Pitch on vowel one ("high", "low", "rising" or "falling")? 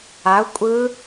rising